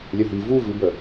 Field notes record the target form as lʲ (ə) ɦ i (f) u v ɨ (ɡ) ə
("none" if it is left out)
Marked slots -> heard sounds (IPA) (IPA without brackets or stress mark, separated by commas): ə, v, b